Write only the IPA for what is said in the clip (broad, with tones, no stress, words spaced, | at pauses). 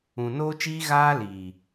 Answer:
ũ˨noː˦t͡ʃiː˦ ɣaː˦liː˨